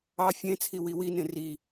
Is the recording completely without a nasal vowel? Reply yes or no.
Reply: no